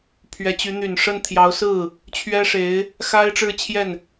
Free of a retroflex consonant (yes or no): no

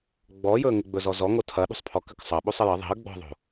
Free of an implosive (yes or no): no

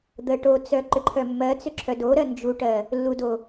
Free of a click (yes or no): no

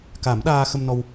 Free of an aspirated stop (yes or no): yes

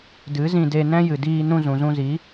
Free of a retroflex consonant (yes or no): yes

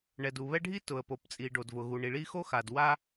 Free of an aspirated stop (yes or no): yes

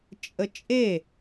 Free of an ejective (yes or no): no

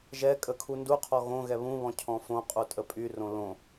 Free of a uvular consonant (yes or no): no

